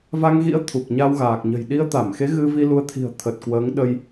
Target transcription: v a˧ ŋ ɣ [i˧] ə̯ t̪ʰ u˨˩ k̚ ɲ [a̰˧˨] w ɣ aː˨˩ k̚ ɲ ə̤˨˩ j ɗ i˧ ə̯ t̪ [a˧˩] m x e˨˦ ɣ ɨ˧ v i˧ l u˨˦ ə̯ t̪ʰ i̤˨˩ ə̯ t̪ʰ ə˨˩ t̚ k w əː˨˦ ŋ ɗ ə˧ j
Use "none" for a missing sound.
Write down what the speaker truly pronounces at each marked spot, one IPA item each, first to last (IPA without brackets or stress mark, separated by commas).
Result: ḭ˧˥, a˧, a˧˩